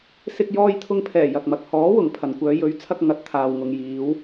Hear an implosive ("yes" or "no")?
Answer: no